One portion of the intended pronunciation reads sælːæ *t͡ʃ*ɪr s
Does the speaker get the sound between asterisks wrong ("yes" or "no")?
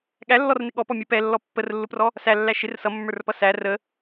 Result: yes